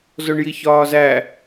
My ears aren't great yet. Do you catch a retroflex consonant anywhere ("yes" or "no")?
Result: yes